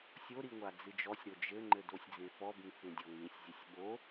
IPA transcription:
sʲoɾi ŋʷad͡zɨd͡ʒɔsʲɾo d͡ʒɘŋ͡ǃɘ dosʲd͡zẽfɔbĩ fẽdʲɔŋĩsʲzʲɘsʲ ɠo

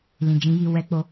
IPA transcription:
lĩ˨d͡ʒĩ˨˦ji˧ wɛ˦k͡po˦

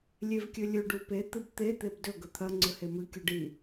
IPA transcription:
lʲevkʲɵlʲɵɖ upe t̪ɨbt̪e t̪ebdɵ ɡɵt̪ʰɐ ŋ͡ǀɵhemɨ kʲoɖi

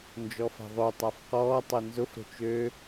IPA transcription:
nd͡ʒɔfa̤ðˤø tˤafqɔːtˤœ nzʊf ɾo̤t͡ʃø

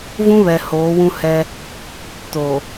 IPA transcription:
vũ˦ βɛ˨ hoː˨˦wũ˦hɛ˦ | to˨

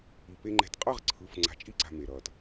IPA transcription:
i˨ pe˨ŋ͡ǃɛ̤˨tqʼʌ˦˨ʁ ǀʰɯ˨f ŋ͡ǀa̤˨˦t͡ʃʼi˦ǀa̤˨ me˨ɾʌː˨t

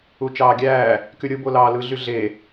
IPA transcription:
ut͡ʃɑːɡʲæː | kyɾʲɯ bolɑːlɯ ɮyɮe

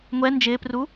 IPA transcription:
ŋʷɛ nd͡ʒɪːpru

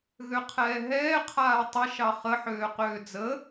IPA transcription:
ɣøqʰɛːɦɛː qʰaːtˤə ʃɑχə ħøːqøːd͡zə

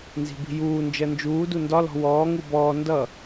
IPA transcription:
nzi̤bi̤juː nd͡ʒɜnd͡ʒuːdu ndɒlɔ̤ wɔː ŋubɔː ndʌ

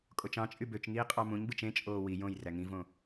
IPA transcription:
kʼot͡ʃɑ̃t͡ʃʼy bøt͡ʃŋiː qʼɑmũɲbɯt͡ʃ ẽt͡ʃʼoː wi jõj ræŋĩvõ

